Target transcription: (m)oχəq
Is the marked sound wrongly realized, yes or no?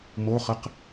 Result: no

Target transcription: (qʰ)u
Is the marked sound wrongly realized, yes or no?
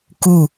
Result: yes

